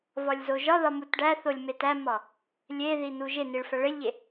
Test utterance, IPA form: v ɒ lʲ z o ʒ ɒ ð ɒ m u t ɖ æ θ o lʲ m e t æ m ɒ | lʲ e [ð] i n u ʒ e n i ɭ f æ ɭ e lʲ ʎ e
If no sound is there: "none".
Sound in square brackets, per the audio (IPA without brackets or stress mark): ð